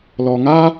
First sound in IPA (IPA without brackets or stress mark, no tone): l